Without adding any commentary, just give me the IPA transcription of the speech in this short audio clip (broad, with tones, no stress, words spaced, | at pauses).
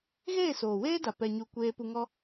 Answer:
ɣeː˦˨soː˨weː˦da˨ pɛ˧ɲu˧ kʷeː˦ pu˧ŋɔ˦